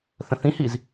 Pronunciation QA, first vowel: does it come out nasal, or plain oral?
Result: nasal